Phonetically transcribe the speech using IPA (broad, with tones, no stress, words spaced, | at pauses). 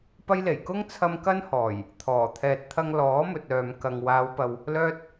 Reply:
pɐ˥jle˨˩j kʊ˥ŋt͡sʰɐ˧m kɐ˥nhɔː˨˩j | t̪ʰɔː˨˩ t̪ʰɛː˨t̚t̪ʰɐ˧ŋlɔː˨˥ mɵ˨t̚œː˨mkɐ˨ŋ waː˨˧wpɐ˨w | lœː˥t̚